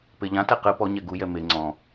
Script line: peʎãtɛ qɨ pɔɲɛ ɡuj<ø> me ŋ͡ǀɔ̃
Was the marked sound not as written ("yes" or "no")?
yes